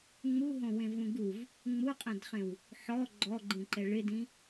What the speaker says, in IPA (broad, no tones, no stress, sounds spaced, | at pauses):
ŋ͡m u ɦ õ w ẽ v ũ ɡ u v | ŋ͡m u qʼ ɛ̃ d χ ẽ w | ħ ɔ ɡ͡ǃ ɔ ɡ͡ǃ ĩ ǃ ɛ ɭ ɪ d ĩ